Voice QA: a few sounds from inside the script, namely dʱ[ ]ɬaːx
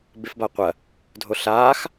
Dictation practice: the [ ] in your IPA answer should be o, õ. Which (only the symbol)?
o